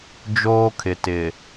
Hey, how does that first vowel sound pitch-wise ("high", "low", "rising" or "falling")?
high